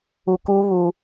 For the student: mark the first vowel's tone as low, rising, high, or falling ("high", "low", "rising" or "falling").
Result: low